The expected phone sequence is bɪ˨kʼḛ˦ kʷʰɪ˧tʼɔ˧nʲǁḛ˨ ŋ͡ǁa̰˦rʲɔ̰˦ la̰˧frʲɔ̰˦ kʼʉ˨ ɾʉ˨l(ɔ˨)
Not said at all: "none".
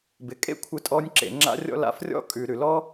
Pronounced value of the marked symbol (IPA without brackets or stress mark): ɔ˦